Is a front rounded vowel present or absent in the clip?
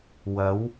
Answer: absent